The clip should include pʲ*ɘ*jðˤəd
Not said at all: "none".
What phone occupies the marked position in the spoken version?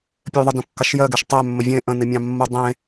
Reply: ɘ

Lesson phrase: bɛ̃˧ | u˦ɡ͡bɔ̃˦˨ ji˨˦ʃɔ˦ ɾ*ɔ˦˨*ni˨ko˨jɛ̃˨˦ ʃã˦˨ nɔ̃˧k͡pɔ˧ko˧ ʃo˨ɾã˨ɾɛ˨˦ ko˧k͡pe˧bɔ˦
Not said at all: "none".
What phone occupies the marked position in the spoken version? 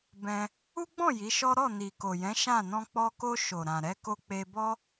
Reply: ɔ˦˨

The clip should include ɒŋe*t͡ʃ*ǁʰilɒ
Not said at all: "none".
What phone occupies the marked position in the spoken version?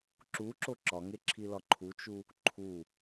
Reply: none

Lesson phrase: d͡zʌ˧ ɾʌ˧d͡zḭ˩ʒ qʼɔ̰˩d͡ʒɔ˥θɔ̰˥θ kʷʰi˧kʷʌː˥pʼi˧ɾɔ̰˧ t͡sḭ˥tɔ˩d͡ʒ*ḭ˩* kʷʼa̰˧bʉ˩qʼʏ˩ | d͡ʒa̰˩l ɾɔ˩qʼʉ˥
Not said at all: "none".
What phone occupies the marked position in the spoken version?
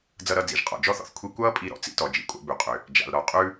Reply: ḭ˩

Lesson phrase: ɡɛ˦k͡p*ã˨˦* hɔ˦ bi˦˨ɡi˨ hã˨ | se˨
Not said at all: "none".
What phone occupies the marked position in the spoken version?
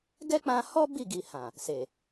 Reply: ã˧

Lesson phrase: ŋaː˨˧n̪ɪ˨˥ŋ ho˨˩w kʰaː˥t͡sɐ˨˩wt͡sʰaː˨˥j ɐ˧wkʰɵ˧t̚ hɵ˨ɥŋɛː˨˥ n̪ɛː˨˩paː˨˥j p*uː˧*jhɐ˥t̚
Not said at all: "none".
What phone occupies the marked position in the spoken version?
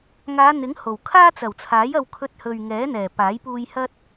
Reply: uː˧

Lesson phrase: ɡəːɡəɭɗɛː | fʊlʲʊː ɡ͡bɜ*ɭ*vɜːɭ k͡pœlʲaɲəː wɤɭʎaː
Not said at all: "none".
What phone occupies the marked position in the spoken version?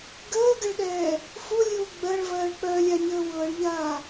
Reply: ɭ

